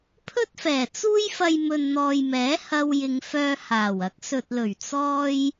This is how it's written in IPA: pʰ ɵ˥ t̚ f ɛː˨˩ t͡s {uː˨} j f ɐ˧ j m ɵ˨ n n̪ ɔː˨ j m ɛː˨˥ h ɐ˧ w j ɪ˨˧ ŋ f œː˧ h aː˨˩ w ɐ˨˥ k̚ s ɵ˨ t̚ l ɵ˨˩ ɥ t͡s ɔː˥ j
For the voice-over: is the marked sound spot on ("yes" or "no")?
no